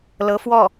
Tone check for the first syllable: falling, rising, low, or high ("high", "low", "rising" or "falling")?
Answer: rising